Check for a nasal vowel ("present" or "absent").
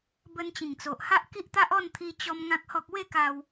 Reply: present